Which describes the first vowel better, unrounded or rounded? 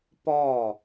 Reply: rounded